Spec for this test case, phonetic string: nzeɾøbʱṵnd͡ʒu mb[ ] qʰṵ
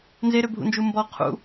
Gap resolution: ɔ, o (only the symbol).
ɔ